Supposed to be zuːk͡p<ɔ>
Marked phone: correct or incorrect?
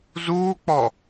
correct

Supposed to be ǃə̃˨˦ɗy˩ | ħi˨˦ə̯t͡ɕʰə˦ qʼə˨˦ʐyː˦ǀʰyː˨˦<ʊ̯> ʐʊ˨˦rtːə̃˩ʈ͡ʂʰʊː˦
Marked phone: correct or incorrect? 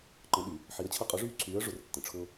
incorrect: ə̯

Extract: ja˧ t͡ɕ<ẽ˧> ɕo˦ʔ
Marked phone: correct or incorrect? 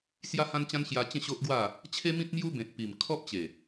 incorrect: ẽ˥˧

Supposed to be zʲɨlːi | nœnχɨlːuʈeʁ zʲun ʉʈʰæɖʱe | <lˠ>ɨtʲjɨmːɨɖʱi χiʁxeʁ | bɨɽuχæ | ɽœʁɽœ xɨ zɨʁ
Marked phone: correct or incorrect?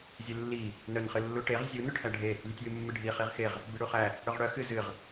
incorrect: lʲ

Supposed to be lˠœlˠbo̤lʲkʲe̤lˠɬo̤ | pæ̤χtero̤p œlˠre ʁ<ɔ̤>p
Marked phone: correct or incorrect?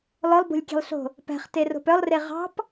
incorrect: ɑ̤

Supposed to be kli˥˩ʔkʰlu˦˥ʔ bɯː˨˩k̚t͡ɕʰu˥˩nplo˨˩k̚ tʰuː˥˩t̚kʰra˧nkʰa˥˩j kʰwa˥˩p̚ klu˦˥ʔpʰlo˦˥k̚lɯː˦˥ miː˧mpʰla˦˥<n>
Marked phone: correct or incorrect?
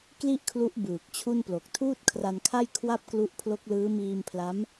incorrect: m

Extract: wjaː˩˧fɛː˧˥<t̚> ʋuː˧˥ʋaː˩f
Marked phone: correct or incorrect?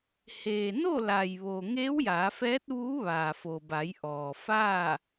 correct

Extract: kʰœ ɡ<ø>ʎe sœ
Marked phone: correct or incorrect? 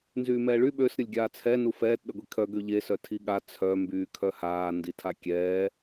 correct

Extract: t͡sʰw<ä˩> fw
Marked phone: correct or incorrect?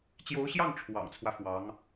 incorrect: ä˦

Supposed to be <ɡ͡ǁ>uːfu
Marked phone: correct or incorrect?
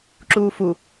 incorrect: ǁ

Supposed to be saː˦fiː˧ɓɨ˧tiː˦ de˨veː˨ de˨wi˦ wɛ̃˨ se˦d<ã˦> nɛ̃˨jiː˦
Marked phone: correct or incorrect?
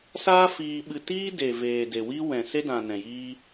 incorrect: ã˨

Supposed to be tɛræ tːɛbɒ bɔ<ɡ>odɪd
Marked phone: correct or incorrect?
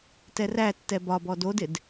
incorrect: d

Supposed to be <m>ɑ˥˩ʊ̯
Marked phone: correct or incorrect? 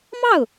correct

